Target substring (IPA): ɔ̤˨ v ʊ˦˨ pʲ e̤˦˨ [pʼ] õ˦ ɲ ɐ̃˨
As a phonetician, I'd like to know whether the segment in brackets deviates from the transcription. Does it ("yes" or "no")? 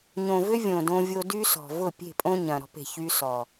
no